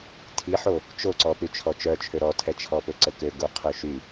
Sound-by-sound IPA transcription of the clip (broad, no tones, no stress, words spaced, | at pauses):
tʰiħo | t͡ʃoǀɔ pyt͡ʃʰɔt͡ʃœ t͡ʃʰøɾɔtʰɛ t͡ʃʰɔpøǀəkø ɡuqʰøʃy